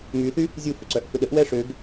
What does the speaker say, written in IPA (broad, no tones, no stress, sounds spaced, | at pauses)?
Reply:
m y θ y | zʲ u f ʏ ǀ œ ʔ f ʏ ɗ ə ʔ w ɛ ʂ ø ɡ